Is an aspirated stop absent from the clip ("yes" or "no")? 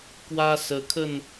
no